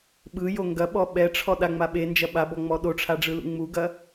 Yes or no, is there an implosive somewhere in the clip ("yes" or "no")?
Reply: yes